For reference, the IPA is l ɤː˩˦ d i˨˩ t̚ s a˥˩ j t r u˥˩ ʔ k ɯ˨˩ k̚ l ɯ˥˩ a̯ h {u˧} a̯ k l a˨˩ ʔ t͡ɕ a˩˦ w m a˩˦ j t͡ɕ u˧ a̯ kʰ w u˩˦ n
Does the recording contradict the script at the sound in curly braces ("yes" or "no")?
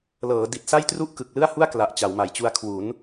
yes